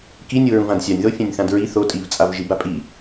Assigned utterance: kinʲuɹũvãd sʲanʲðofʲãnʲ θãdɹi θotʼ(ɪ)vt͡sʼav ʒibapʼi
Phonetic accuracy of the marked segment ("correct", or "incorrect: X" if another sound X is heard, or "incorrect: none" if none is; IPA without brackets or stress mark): incorrect: i